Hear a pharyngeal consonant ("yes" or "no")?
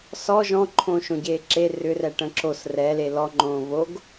no